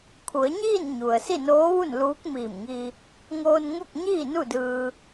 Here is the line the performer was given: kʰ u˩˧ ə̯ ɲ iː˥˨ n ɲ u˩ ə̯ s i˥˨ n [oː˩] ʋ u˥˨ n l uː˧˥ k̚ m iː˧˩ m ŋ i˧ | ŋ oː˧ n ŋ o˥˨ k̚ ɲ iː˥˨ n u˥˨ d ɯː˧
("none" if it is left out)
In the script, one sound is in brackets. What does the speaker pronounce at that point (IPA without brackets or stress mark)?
oː˧˥